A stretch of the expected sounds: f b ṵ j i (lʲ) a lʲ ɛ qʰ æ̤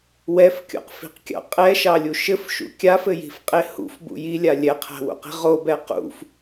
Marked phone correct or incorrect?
correct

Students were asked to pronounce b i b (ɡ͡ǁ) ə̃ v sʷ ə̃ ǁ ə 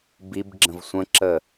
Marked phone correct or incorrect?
correct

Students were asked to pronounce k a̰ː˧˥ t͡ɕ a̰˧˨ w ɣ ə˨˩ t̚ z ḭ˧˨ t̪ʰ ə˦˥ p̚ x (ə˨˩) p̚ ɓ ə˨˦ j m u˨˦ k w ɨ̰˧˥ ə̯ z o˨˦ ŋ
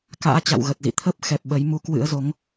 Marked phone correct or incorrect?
incorrect: ɛ˨˩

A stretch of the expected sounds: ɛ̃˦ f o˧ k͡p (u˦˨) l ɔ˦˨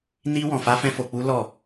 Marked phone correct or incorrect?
incorrect: u˦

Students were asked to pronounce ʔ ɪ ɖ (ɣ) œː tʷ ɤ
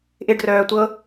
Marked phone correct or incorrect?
incorrect: r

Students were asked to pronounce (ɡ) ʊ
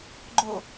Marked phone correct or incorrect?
incorrect: ɡ͡ǃ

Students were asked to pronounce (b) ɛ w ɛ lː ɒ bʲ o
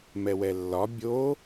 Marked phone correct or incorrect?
incorrect: m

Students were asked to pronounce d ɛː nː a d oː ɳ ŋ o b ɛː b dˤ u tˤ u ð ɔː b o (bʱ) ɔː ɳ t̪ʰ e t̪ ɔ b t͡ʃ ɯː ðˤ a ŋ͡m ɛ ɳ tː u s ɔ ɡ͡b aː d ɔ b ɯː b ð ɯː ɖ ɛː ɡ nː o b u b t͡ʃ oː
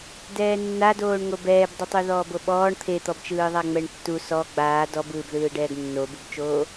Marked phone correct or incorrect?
incorrect: ɓ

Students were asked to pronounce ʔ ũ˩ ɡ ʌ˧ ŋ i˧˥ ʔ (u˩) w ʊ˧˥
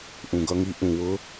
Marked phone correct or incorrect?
incorrect: ũ˩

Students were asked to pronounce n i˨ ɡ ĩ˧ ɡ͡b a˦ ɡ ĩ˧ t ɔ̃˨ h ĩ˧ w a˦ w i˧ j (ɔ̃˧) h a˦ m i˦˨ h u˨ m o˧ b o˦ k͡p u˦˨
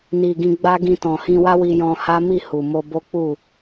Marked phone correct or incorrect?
correct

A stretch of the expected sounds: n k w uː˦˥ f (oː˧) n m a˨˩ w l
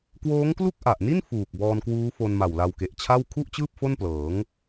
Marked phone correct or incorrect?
incorrect: o˧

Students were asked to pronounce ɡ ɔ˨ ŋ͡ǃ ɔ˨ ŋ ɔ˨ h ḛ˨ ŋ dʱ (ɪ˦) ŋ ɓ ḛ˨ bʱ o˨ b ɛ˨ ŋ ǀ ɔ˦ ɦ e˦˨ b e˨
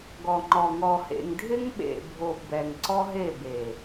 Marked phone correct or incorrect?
correct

